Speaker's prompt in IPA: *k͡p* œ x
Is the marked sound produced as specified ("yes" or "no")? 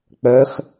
yes